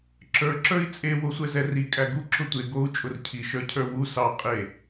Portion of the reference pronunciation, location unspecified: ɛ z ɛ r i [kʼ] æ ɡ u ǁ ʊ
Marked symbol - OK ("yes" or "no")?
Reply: yes